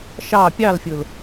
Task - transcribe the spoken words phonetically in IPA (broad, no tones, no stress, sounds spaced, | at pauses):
ʃ ɑ pʲ ɑ l fʲ ʊ l